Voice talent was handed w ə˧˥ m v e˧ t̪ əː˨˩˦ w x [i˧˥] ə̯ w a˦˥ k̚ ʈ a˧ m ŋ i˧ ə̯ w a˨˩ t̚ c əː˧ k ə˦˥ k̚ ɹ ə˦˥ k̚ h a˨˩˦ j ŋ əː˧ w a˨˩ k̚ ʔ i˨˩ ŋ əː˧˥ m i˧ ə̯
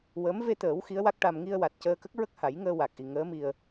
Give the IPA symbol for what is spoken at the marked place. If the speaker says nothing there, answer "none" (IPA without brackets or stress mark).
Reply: i˧˥